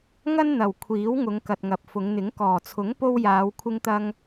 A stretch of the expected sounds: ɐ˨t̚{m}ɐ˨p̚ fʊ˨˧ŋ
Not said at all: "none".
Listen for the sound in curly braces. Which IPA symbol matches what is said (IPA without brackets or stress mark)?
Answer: ŋ